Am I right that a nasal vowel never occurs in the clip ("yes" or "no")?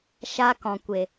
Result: no